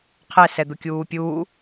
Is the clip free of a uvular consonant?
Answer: no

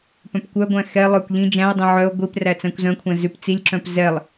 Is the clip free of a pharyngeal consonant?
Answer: no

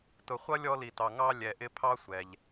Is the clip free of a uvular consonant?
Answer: no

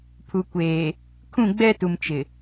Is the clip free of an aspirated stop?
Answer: no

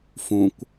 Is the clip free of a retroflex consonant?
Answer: yes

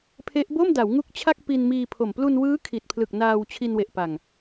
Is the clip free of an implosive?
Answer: yes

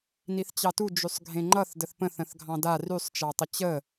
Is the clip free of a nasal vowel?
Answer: no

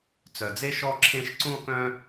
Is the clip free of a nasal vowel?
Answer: no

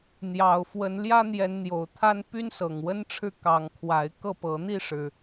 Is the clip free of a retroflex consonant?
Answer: no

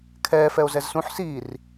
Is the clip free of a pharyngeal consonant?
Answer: no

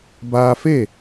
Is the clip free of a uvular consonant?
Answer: yes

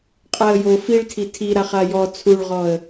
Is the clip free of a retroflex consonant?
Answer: no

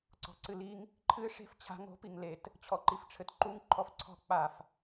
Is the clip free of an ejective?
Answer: yes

